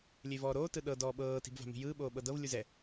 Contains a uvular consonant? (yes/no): no